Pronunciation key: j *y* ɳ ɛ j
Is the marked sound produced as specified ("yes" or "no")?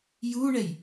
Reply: no